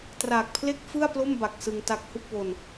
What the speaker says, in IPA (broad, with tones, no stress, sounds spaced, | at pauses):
t r aː˨˩ k̚ pʰ l e˥˩ k̚ f ɯ˥˩ a̯ p l o˥˩ m b a˨˩ k̚ s ɯ˧ ŋ t a˦˥ k̚ h u˥˩ k̚ w o˧ n